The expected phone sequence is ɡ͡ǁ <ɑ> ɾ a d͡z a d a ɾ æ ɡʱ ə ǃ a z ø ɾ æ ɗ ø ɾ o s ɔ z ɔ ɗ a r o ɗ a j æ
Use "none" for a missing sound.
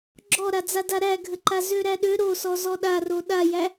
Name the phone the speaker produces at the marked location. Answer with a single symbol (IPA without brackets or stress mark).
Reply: ɔ